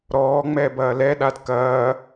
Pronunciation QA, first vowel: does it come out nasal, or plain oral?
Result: oral